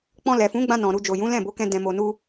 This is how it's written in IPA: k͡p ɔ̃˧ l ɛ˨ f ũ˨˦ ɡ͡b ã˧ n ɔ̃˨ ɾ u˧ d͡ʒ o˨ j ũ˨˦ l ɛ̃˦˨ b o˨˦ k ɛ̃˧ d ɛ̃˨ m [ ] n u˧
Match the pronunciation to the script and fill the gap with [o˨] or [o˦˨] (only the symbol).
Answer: o˨